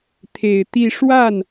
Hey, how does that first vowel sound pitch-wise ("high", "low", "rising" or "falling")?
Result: low